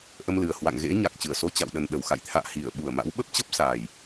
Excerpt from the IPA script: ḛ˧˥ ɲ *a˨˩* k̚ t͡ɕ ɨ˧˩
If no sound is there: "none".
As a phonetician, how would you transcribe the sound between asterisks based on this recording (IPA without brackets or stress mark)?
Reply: a˨˩